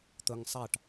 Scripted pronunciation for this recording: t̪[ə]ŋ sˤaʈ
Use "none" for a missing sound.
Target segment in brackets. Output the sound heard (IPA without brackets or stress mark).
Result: ə